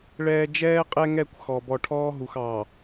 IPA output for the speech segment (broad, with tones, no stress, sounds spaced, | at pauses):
ɭ ɛː˨ d͡ʒ ɛː˦ qʼ ɛ˦ ŋ ɛ˦˨ kʷ x ɔ˨ b ɔ˨ ʈʰ ɔː˦ ɦ u˨ x ɑ˨